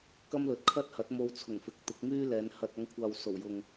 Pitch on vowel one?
high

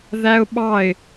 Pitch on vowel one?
high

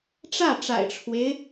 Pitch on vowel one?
falling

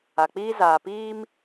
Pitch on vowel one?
low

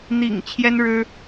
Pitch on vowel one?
low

